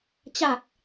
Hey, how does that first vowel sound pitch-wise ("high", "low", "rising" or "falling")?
low